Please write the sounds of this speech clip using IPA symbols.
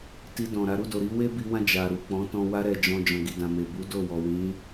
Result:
t i˧ d ɔ̃˨ ɾ a˨˦ ɾ u˦˨ d o˨ ɾ i˧ w e˦ b i˧ w ã˧ d͡ʒ a˨ ɾ u˨ k͡p ɔ̃˨˦ t ɔ̃˧ w a˧ ɾ ɛ˨ d͡ʒ ɔ̃˨ d͡ʒ ɔ̃˨ ɡ i˨ d ã˨ m e˨ b u˨˦ d o˦˨ w ɔ˨ w ĩ˨˦

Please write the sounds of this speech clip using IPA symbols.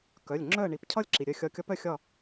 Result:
k œ˩˧˩ lʲ ŋ͡ǁ œ˥˨ ə̯ ɳ i˩˧ p cʰ ɒ˥˨ lʲ ǁ i˩ ɾʲ œ˧˩ xʲ ɒ˧˩ kʲ ɒ˧˥ p œ˥˨ xʲ ɒ˥˨

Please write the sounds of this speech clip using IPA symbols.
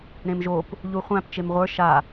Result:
ɾ ẽ m ʒ o p | ʎ u χʷ æ̃ p t͡ʃ e m ʁʷ ə˞ ʃ a

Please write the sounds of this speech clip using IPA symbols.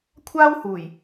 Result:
kʷʰ aː˥ w h uː˨˩ j

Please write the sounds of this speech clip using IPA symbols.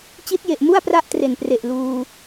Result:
t͡ɕ i˦˥ t̚ j e˨˩ ʔ m u˥˩ a̯ p r a˥˩ ʔ t r e˨˩ n p r e˨˩ ʔ l uː˧

